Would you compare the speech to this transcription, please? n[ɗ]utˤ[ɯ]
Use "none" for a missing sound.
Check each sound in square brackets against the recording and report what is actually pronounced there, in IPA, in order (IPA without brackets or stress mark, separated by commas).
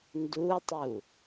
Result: d, u